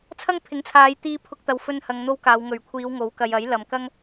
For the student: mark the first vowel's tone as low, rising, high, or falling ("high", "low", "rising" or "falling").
high